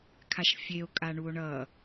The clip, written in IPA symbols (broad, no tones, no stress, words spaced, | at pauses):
kʰaʃfʲeo̯ kʼaɳuo̯ɳʌ